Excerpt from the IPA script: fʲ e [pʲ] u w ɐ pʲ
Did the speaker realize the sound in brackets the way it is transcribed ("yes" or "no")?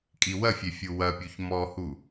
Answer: no